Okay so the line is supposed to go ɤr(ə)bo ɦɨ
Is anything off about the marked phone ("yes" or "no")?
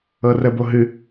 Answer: no